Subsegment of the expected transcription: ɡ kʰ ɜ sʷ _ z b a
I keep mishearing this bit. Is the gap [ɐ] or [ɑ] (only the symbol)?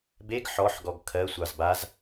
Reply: ɑ